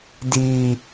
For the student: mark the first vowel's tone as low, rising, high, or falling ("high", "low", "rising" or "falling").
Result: high